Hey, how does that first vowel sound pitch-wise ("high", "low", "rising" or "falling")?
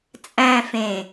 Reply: high